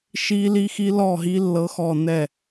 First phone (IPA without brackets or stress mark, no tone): ʃ